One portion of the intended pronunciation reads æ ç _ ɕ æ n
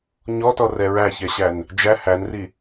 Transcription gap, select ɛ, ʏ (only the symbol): ɛ